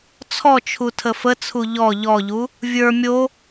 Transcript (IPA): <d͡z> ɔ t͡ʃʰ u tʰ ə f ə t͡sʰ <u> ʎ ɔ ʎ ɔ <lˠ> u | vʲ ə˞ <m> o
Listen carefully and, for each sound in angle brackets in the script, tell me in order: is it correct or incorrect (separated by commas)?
incorrect, correct, incorrect, incorrect